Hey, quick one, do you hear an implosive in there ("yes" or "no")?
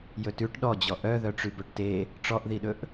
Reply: yes